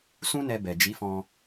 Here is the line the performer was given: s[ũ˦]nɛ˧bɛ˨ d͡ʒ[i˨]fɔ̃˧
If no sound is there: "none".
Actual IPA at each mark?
ũ˦, i˨˦

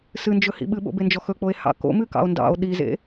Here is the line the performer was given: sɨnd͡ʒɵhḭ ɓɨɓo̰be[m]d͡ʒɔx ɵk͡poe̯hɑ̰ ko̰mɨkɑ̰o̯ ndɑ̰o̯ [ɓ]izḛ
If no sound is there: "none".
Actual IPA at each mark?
n, ɗ

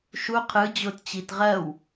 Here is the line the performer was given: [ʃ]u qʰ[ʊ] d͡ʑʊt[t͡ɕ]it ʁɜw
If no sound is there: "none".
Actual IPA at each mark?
ʃ, ɯ, t͡ɕ

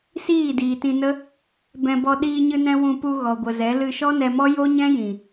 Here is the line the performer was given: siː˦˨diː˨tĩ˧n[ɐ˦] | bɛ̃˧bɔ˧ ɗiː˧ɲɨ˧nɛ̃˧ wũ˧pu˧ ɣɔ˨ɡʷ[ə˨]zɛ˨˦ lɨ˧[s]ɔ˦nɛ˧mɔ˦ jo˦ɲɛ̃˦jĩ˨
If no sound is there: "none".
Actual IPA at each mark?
ə˦, ə˨, ʃ

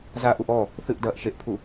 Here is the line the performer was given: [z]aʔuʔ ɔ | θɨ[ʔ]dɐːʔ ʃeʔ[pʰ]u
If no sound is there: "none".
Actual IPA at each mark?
z, ʔ, pʰ

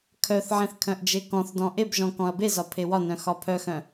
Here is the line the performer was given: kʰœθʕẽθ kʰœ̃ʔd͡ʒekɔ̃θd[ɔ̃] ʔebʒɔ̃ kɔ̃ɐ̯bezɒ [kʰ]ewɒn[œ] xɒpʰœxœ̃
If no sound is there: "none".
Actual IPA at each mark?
ɔ̃, pʰ, œ̃

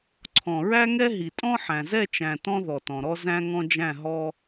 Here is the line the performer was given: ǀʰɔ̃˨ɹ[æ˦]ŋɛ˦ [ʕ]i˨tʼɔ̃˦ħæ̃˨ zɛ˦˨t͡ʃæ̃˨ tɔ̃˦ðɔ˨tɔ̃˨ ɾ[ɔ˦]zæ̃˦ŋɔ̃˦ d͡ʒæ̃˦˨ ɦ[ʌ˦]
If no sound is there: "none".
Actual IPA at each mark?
æ˦, ɦ, ɔ˦, ɔ˦

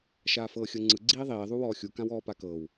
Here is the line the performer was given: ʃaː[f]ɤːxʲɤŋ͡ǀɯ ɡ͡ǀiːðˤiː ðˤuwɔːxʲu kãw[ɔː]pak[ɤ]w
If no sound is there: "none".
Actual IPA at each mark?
f, ɔː, ɤ

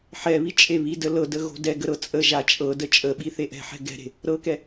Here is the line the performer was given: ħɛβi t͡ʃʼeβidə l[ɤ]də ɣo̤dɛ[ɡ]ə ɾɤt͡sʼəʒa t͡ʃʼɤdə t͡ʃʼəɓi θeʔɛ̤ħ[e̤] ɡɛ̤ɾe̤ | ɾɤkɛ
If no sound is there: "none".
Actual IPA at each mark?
ɤ, ɡ, ɛ̤

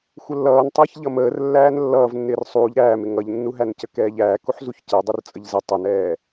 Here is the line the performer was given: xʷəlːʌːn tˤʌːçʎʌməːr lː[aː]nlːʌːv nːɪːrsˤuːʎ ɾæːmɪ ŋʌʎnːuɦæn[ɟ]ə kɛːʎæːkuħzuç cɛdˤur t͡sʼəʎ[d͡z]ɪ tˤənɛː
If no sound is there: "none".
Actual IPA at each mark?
æː, c, z

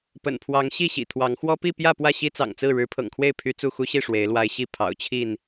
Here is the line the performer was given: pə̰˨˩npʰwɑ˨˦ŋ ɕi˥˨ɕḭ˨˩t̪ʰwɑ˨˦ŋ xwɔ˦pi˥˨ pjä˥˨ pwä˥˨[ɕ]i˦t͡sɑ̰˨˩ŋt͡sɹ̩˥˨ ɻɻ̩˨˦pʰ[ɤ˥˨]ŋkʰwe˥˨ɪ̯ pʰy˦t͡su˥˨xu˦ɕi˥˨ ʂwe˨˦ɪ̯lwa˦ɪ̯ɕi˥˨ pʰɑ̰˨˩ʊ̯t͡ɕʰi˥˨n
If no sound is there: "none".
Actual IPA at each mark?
ɕ, ɤ̰˨˩

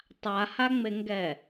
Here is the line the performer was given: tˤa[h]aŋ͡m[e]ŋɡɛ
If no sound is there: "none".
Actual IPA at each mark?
h, e

